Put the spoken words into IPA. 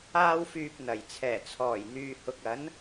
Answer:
aː˥ w f yː˧ p̚ n̪ ɐ˨˩ j t͡sʰ ɛː˨˩ t͡sʰ ɔː˨˩ j n̪ yː˨ h ʊ˨ k̚ ɐ˨˥ n

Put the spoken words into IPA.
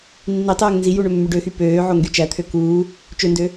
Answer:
nː i tˤ øː ŋ n z i j u ɳ ø mː y ɖ ø x y p øː ʕ o ŋ ɡ y t͡ʃ æ t̪ʰ ø k uː | t͡ʃ ø n d ø

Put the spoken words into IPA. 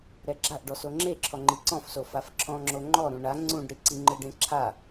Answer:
ɾ ɛ ɡ͡ǁ a ʔ ɖ ɔ s o ŋ͡ǁ e ǁʰ ɔ ŋ͡ǃ i ǀ ɔ̃ f s o f a f ǁʰ ɔ̃ ŋ͡ǁ o ŋ͡ǃ ɔ ɾ ũ ɳ a ŋ͡ǀ ũ ɖ ɾ i ǀ i ŋ͡ǃ ɯ ɖ ẽ ǁʰ a

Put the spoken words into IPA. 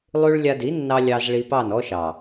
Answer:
lˠ ʉ˦ ɭ lʲ a˧ d i˨˦ nː ɑ˧ lʲ ɑ˧ z ɭ i˧ p ɑ˦˨ n ɔ˦ ʃ ɑ˨

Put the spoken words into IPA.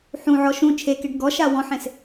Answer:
ħ ũ ʕ ɔ ʃ ũ t͡ʃʰ e k e ɖ ɡ ɔ ʃ a w ɔ̃ ħ ẽ s

